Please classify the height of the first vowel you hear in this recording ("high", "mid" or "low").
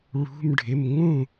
high